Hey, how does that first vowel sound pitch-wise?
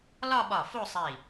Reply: falling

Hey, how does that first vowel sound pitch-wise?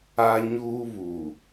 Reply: high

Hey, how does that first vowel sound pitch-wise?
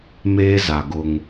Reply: high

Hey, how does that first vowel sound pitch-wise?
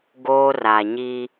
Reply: high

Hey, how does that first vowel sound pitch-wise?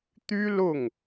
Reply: high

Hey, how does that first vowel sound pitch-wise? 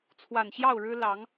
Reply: low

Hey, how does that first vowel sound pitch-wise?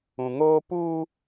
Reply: low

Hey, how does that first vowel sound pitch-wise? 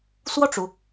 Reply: falling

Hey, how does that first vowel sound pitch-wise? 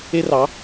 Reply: high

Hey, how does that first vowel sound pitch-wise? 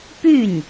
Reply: falling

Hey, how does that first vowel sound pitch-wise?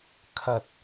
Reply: low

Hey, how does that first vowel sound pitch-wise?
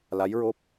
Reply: rising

